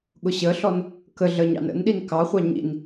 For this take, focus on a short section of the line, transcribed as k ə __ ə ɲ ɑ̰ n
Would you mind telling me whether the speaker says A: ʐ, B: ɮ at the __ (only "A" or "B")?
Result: B